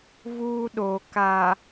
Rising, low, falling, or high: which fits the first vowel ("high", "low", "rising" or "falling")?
high